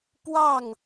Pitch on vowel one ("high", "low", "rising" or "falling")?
falling